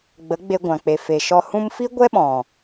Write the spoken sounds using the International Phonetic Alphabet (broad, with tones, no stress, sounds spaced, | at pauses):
ɡ͡b ə˨˦ ɡ͡b e˧ ɡʷ ã˨ k͡p e˨ f e˨ ʃ ɔ˧ h ũ˦ m f i˦ ɡʷ ɛ˦ ɓ ɔ̃˨